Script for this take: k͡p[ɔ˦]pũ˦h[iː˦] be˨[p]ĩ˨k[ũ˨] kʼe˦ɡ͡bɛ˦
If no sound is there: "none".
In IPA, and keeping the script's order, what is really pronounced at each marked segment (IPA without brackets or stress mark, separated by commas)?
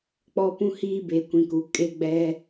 ɔ˦, iː˦, kʷ, u˨